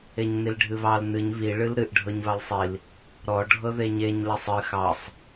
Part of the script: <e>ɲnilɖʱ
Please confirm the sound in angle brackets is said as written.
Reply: yes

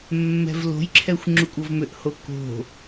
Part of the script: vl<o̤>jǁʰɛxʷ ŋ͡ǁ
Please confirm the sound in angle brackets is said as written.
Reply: yes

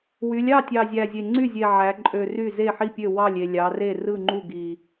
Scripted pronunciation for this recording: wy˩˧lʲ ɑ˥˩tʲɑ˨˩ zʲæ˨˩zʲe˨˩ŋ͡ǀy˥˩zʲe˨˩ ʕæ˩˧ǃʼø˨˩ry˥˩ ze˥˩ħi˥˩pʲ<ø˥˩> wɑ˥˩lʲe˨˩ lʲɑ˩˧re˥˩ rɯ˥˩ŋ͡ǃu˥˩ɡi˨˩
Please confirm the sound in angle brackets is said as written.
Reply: yes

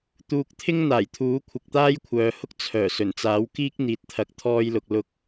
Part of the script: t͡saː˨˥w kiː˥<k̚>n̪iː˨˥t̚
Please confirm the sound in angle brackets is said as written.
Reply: yes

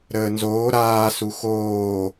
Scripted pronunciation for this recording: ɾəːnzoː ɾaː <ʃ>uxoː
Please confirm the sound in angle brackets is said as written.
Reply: no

